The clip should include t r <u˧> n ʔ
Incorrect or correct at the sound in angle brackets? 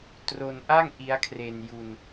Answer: incorrect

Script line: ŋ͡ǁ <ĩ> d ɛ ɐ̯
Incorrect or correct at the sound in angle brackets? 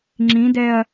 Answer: correct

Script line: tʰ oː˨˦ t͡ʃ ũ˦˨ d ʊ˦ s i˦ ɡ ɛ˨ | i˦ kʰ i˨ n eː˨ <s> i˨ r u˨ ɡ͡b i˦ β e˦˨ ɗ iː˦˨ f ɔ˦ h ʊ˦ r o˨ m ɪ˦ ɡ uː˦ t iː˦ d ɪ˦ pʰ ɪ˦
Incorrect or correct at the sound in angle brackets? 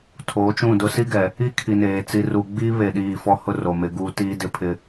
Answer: incorrect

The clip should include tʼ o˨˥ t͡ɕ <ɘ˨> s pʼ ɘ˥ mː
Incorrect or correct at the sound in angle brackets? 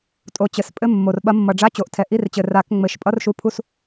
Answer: incorrect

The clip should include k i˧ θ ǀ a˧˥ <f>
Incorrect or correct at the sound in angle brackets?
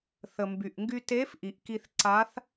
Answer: incorrect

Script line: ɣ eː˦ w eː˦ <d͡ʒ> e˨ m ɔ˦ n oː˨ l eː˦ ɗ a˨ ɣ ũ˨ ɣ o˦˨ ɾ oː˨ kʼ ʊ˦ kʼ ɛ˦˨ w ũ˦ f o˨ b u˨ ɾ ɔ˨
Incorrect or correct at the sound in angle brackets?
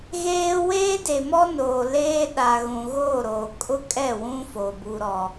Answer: incorrect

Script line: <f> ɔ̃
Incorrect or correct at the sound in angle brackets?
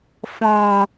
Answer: correct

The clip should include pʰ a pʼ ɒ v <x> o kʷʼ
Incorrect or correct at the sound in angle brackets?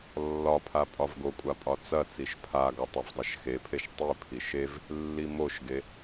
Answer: incorrect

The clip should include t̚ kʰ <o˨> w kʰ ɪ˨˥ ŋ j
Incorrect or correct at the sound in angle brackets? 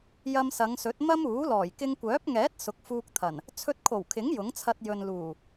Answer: incorrect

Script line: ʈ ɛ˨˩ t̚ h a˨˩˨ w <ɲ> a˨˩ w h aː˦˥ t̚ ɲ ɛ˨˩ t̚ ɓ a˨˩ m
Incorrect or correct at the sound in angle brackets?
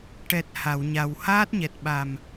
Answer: correct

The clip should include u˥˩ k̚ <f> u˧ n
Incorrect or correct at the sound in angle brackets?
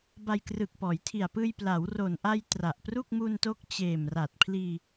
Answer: incorrect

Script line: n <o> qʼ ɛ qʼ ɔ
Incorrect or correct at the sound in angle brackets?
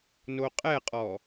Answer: correct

